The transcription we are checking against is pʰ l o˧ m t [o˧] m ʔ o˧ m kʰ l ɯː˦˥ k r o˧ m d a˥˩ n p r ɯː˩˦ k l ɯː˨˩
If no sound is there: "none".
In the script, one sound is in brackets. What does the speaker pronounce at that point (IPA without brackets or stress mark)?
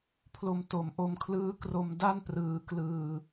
o˩˦